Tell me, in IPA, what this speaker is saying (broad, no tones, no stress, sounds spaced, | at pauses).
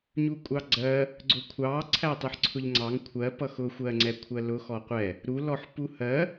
ɲ u kʷʼ ɑ ɡ͡ǀ ɜ | ɡ͡ǀ ʊ kʷʰ ɑ ǀʰ æ tˤ i ħ ǀʰ ʊ ʎ ŋ͡ǀ ɑ ŋ kʷʰ ɜ p ʌ x ʊ xʷ ɜ ŋ͡ǀ ɛ kʷʰ ɜ l ʊ x ɔ qʷ ɛ | ɾ u l ɔ ħ p u h ɜ